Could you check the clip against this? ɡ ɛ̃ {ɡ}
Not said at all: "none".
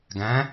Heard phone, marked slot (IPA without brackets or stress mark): none